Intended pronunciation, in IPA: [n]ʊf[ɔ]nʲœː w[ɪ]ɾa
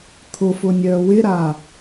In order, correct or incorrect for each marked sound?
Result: incorrect: t̪ʰ, incorrect: ʊ, correct

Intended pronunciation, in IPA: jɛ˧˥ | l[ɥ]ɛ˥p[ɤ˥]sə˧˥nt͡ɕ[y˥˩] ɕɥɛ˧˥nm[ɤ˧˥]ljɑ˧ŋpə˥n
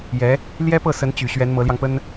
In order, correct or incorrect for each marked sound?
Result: incorrect: j, incorrect: ɤ˥˩, incorrect: y˨˩, correct

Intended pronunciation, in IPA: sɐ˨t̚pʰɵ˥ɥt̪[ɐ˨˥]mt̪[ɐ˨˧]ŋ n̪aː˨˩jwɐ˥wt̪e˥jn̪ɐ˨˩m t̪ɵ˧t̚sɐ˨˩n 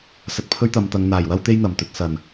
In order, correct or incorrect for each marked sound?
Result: incorrect: ɐ˨˧, correct

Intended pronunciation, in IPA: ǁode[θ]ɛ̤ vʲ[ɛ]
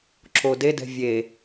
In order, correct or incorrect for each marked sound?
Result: incorrect: d, incorrect: e

